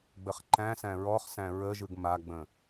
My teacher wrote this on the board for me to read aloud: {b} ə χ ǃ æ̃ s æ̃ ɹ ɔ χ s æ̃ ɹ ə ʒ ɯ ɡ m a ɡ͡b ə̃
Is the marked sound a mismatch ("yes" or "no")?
yes